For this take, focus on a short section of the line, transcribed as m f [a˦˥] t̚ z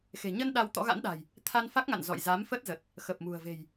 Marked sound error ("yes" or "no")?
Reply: yes